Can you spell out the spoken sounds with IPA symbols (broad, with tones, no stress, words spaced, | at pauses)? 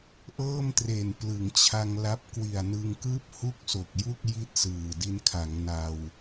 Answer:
ʔɤː˥˩mtre˨˩n plɯ˩˦ŋt͡ɕʰa˧ŋla˦˥p̚ kwi˨˩a̯nɯ˧ŋkɯː˥˩p̚ hu˥˩k̚so˨˩k̚ju˥˩k̚ ji˥˩t̚sɯː˨˩ di˧nkʰa˩˦ŋ na˧w